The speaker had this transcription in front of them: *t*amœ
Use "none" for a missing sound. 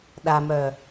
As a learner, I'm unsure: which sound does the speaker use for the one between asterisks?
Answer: ɗ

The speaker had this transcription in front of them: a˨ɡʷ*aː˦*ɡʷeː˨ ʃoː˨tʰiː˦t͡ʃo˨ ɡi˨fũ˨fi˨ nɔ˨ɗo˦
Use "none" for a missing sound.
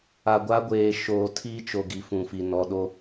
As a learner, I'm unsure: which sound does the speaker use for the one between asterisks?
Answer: a˦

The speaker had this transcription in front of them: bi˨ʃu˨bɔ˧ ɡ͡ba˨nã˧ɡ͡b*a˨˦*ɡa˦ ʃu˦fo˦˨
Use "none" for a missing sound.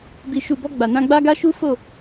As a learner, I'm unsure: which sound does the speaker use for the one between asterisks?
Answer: a˦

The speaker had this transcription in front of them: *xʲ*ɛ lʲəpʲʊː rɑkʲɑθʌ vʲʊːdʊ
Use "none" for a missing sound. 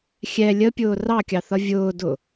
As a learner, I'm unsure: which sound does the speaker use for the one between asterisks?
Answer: xʲ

